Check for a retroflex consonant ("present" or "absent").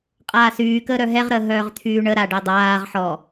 present